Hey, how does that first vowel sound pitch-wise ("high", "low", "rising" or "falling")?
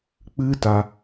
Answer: high